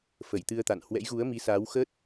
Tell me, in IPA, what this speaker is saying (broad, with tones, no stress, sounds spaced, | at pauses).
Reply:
f ə˧˩ j t̪ ɨ˧ ə̯ t̪ a̰˧˨ n h w ɛ̰˧˥ j ɣ u˨˦ ə̯ m i˨˦ s aː˨˦ w x ə˦˥ t̚